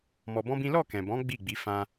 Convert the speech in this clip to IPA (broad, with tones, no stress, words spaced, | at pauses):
mɔ˧bɔ̃˦bĩ˦ lɔ˦˨kɛ̃˨bɔ̃˨˦ ɡ͡bi˦˨ɡ͡bi˨˦ fã˧